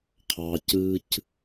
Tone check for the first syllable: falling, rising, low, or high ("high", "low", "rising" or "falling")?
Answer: low